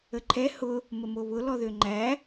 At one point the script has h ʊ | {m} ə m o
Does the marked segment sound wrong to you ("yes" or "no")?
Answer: no